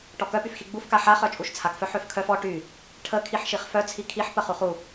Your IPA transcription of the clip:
ʈ ɔ k œ p y f x i ɡ͡b u f k a ħ a χ œ t͡ʃʼ u ʃ t͡sʰ a k f œ ħ ø f kʰ œ f ɔ ʈ y | ʈʰ ə kʰ i ħ ʃ i χ f œ t͡sʰ i kʰ i ħ p ə χ u χ u

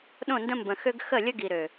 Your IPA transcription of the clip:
ɗ õ˦˨ n d ə̃˦ m b ə̃˨ x ø˦ ɡ x ə˦˨ lʲ ə˦ ɡ i˨ ɾ ø˨

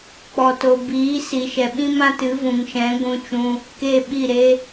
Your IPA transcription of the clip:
k͡p ɔ˨ t o˨ b iː˨˦ s i˨ ʃ ɛ˨ ɓ ĩ˦ m ã˦ t ɨ˨˦ v ũ˨ ŋ ʃ ɛ̃˨˦ ɡʷ ũ˧ t͡ʃ ũ˧ | k e˦˨ ɓ i˦˨ ɾ e˦

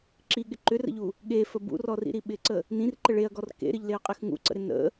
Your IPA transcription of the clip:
ǁ i ɠ ɪ ǃ ʏ r ə̰ ʎ u | ɠ e f ə b ṵ r ɔ r ḭ ɾ i ɓ ɪ ǀ ə | n ĩ r ǃ ə ɭ e ɐ̯ ɡ ɔ r k ḛ ɾ ɪ ʎ l e ɐ̯ qʼ e x ŋ ṵ ǀ ə̰ ɾ ɪ n ə̰

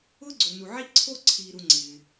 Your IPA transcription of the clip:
ʊː˥ ɡ͡ǀ o˨ n u˨ ʕ i˥ ǀʰ o˥ ǀʰ iː˨ ɾ u˨ ŋ͡ǀ ɪː˩

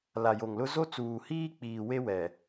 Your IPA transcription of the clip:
l a˨ j o˨ ŋ l ʊ˦ z o˦ t͡s uː˨ h iː˦ k͡p iː˨ w e˦ w ɛ˨

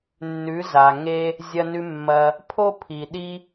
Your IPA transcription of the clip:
nː ʉ˩˧ z a˩ ŋ e˧ | zʲ ɐ˧ n ʉ˧ mː ɐ˧ | pʰ o˥ pʰ i˩ ɗ i˥

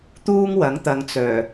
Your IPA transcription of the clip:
t̪ uː˥ ŋ w ɐ˨˥ ŋ t̪ ɐ˨˧ ŋ t͡s œː˨˩

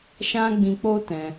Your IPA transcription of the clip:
ʃ ã˦ ɡ͡b ĩ˧ k͡p o˦ t ɛ̃˧

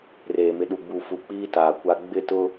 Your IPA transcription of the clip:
r eː˨ m ɪ˨ ɗ u˨ ɡ͡b u˨ f u˨ k͡p iː˦ t aː˨ kʷ a˦ ɡ͡b ɪ˦˨ t ʊ˦

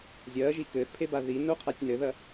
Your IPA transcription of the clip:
zʲ ɐː ʒ i k ɘː θ pʰ e b a ð i n o qʰ a tʲ n ɘ ð ɐ

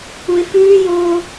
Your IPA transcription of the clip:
u ɪ̯ f ʉː j oː

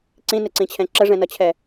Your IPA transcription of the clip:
ǀ ĩ n ɪ ǀ ĩ t͡ɕʰ ɛ̃ ǁ ə ʐ ɛ̃ n ʌ t͡ɕʰ ɛ

